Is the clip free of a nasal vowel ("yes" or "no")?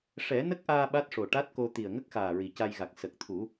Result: yes